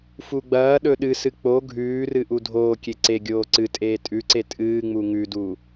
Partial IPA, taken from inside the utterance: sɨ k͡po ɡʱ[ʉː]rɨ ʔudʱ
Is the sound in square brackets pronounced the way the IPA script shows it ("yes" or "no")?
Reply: yes